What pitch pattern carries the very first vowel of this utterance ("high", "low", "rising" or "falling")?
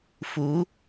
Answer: rising